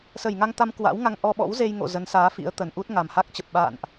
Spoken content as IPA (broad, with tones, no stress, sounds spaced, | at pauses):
s ə˧˩ j ŋ a˧ ŋ t̪ a˧ m k w a̰˧˥ w ŋ a˧ ŋ ʔ ɔ˧ ɓ ɔ̰˧˥ w z e˧ j ŋ o̰˧˨ z ə˨˦ n s aː˨˦ f ḭ˧˥ ə̯ t̪ ə˨˩ n ʔ u˦˥ t̚ ŋ a˨˩ m h a˦˥ k̚ t͡ɕ ə˨˩ p̚ ɓ a̰ː˧˨ n ʔ